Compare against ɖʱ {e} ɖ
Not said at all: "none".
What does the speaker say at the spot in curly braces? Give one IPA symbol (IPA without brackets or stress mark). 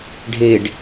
e